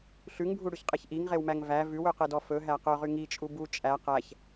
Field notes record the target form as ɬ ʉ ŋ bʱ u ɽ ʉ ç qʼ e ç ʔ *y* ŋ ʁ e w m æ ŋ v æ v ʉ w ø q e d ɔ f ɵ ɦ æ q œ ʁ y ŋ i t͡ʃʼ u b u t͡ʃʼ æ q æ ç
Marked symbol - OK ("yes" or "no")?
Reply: no